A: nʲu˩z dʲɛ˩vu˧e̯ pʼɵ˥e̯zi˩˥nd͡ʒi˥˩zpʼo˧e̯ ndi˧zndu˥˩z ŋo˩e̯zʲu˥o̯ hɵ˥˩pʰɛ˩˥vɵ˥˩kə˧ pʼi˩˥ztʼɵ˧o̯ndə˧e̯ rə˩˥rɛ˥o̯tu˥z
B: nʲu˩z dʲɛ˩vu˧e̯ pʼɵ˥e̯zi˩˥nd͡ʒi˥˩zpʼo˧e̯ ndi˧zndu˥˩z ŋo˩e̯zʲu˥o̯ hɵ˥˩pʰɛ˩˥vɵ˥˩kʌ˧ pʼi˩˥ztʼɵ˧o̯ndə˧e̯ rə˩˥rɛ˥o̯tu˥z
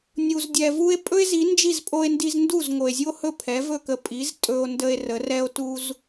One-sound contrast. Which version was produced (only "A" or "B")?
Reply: A